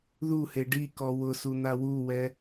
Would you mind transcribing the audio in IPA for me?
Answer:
ð u h e ɖ i k ɔ w ʊ s u n̪ a w u w ɛ

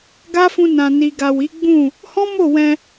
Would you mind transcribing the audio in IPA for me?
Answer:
ɡ a˦ f ũ˧ n ã˨ n i˨ ɡ a˨ w i˨˦ ɡ͡b ũ˦˨ | h ɔ̃˦ m o˦˨ w ɛ̃˧

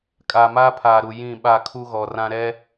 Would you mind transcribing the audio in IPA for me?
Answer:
kʼ aː˨ m aː˦ pʰ aː˨ ɾ u˨ j ĩ˦˨ ɓ a˦˨ kʰ u˦ ɣ ɔ˨ r ã˦ ɾ ɛ˦

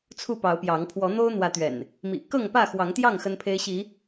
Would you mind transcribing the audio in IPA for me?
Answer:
t͡sʰ u˥˨ p ɑ˨˦ ʊ̯ p j ɑ˨˦ ŋ pʰ w ɔ˨˦ n̪ o˦ ʊ̯ n̪ w ä˨˦ t̪ ɥ ɛ̰˨˩ n | m ḭ˨˩ k ɤ˥˨ ŋ p ä˥˨ x w ɑ˨˦ ŋ t̪ j ɑ˥˨ ŋ x ə˦ n pʰ e˦ ɪ̯ ɕ i˨˦

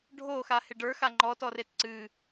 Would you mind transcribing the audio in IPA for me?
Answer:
ɖʱ o x a h ɪ ɖ ə˞ x a ŋ͡ǃ ɔ t ɔ r e t ǀ ɨ

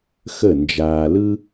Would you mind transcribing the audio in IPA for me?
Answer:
x ə˥˩ n d͡ʒ aː˧ l ɯ˥

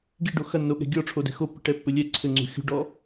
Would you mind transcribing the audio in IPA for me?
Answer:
ɡ i ɖ o x ɐ nː o ɠ ɛ̤ ɡʲ ɔ ʈ͡ʂʰ o d ɛ̤ x o pː i̤ ʈ ɛ pː ɘ lʲ ɛ ǀʰ ɘ ŋ͡ǀ ṳ xʲ ṳ ɖ ɔ

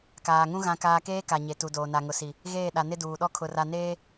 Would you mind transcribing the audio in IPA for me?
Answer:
k aː˨ ŋ ũ˦ ɣ ã˦ k aː˦ k eː˦ k a˨ ɲ e˨ t u˨ d oː˨ n a˨ ŋ ʊ˨ s i˨ | ɣ eː˦˨ ɗ a˨ n ɪ˦ d uː˨ ɗ ɔ˦ kʰ ʊ˨ r a˨ n eː˦

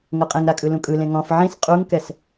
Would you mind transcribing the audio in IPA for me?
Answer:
ŋ ɤ qʼ ẽ ŋ ɾ a kʼ ɯ l ũ kʼ ɯ l ẽ ŋ ɔ̃ f ʕ ĩ s qʼ u ŋ k ɛ s

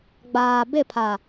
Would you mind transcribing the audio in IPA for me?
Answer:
ɡ͡b aː˨ b ɪ˦˨ pʰ a˨

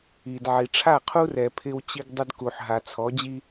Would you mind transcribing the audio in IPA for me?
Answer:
i˨ d ʕ i˨ ʈ͡ʂʰ a˦˨ qʰ u˦ r ɛ˨ pʰ ɪ˦ w t͡ɕ i˦ ɡ dˤ ʊ˦ d k u˨ ħ ɦ a˨ t͡sʰ ɔ˨˦ d͡ʑ i˦

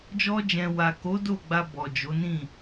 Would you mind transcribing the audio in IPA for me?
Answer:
d͡ʒ ɔ˧ d͡ʒ ɛ̃˨ w a˨ k o˨˦ d o˦˨ ɡ͡b a˧ b ɔ˨ d͡ʒ o˨˦ n ĩ˦˨

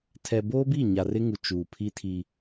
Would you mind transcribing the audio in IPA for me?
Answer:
tʰ ɛ˨ b oː˦ b i˦˨ ɲ a˨ r ɪ˦ ŋ u˨ t͡ʃ uː˨ pʰ i˦ tʰ i˦

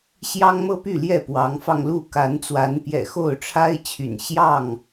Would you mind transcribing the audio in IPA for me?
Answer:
ɕ j ɑ˦ ŋ m ɤ˦ p y˥˨ l j ɛ˥˨ p w ɑ˨˦ ŋ f ɑ˧ ŋ l u˥˨ k a˨˦ n t͡s w a˨˦ n p j ɛ̰˨˩ x o˥˨ ʊ̯ ʈ͡ʂʰ a˦ ɪ̯ t͡ɕʰ y̰˨˩ n ɕ j ɑ˥˨ ŋ

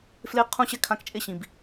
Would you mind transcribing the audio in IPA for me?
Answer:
f l e˦ qʰ ũ˦ ɕ ɛ˦ kʰ ã˧ k t͡ʃʼ e˦˨ ɕ ĩ˨ b

